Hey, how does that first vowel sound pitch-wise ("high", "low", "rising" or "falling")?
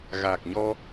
low